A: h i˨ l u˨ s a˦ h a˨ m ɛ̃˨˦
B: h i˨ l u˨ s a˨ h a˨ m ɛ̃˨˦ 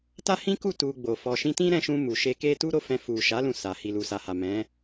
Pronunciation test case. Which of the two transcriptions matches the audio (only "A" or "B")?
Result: B